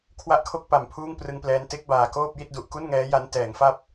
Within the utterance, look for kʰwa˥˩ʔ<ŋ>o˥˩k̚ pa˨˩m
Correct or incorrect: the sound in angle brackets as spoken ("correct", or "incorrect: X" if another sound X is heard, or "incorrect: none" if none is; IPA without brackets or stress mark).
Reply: incorrect: kʰ